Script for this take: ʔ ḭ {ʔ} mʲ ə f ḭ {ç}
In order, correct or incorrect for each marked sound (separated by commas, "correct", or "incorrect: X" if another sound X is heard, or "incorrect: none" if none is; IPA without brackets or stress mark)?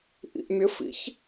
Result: correct, correct